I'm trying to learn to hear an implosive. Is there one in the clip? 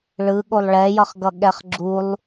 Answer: yes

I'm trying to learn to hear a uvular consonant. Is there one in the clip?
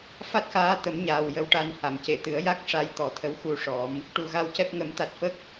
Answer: no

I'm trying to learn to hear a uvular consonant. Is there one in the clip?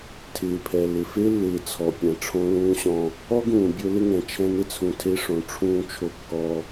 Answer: no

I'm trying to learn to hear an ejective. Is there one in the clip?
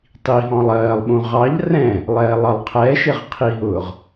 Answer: no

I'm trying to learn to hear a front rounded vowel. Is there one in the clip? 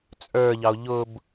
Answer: no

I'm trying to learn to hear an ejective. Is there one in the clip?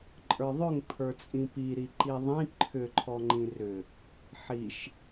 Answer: yes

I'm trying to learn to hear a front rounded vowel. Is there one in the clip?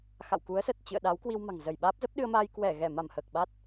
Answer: no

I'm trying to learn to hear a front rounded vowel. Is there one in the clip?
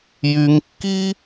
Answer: yes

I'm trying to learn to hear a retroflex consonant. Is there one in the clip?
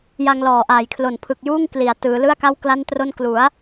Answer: no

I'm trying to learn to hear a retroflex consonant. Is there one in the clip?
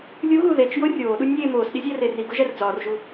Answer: no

